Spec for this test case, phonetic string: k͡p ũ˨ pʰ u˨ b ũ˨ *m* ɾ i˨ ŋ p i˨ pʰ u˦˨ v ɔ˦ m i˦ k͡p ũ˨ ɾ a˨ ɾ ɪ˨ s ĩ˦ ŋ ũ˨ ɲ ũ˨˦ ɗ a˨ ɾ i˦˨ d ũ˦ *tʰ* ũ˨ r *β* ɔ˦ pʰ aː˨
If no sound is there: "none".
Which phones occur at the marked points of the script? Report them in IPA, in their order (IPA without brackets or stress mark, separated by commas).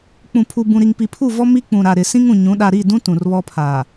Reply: none, t, β